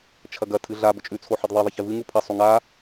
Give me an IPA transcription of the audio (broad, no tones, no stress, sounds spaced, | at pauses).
t͡ʃʰ ɐ ɡ ɐ tʰ ɨ ɮ a b ɵ t͡ʃʼ ʉ t͡sʰ o ħ e d ðˤ e ðˤ ɐ ç e v ɨ ŋ u pʰ ɐ sˤ u ŋ a